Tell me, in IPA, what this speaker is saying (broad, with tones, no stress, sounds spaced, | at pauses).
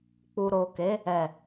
k͡p u˨ ɾ o˨ k e˨˦ | ɛ˨